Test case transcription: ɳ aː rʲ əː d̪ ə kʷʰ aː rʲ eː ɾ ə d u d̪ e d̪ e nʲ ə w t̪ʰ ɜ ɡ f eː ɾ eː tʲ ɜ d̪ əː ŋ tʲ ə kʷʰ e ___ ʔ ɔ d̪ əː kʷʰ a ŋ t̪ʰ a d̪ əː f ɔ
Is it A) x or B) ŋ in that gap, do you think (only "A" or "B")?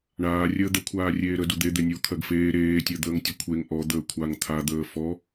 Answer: B